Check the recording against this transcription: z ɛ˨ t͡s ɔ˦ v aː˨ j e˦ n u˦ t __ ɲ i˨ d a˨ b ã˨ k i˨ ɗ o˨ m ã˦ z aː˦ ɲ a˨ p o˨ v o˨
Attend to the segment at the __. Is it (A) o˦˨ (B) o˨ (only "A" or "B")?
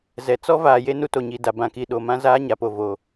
B